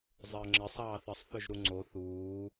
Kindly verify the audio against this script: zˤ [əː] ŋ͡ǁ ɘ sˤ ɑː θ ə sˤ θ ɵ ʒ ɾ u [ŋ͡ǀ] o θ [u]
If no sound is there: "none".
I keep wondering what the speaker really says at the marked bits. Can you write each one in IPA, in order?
əː, ŋ͡ǀ, uː

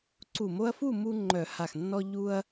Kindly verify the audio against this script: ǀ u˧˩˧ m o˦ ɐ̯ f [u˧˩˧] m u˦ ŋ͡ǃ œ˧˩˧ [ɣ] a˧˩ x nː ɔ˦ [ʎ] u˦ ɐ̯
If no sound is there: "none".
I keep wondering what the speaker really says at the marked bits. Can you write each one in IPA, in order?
u˥˨, h, ʎ

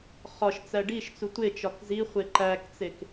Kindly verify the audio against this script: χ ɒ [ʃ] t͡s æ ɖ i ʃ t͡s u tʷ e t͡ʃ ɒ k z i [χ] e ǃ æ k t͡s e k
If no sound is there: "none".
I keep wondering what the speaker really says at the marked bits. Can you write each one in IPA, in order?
ʃ, χʷ

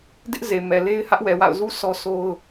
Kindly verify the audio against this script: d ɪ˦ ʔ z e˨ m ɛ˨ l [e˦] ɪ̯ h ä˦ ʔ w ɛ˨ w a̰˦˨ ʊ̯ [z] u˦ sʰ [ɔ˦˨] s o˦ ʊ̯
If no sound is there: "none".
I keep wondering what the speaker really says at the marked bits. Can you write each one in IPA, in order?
e˦, z, ɔ˦

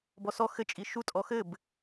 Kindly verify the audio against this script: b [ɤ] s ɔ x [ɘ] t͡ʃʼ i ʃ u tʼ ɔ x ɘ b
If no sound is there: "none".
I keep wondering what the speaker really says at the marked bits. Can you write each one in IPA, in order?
ɔ, ɘ

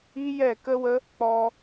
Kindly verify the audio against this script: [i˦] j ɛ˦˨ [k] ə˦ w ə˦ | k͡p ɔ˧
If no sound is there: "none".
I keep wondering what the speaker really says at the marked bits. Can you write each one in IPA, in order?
i˦, k

